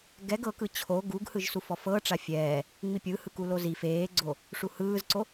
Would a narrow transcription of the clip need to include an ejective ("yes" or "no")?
no